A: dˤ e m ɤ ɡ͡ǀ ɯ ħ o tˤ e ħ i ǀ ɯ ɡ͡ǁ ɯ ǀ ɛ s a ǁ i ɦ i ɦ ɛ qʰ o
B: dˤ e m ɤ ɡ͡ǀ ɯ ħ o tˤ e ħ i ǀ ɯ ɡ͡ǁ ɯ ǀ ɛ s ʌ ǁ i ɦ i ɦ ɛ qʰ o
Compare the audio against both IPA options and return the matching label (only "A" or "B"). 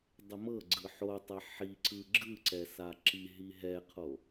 A